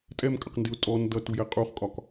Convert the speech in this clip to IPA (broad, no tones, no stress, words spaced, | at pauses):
tʼɛmkʼəqndɪʊ̯ tʼɔn dʌtujɛ qʼuχkʼɒk